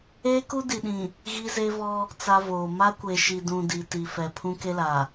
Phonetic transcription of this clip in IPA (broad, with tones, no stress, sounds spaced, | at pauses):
eː˦ k u˦ d i˨ ɗ ĩ˨ | ɣ i˦ z e˦ v ɔ˦ | t͡s a˦ v oː˨ m a˦ kʷ e˨ ʃ i˨ d ũ˨ d i˨ t i˨ f ɛ˨ pʰ ũ˦ k e˦ l a˨